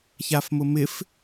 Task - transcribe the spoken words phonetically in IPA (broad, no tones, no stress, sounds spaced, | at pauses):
ç a f m ʊ m ɪ f